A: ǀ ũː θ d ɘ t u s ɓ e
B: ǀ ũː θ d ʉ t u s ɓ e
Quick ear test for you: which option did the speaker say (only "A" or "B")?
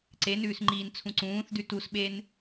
B